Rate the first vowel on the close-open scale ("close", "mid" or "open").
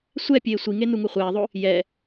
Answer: mid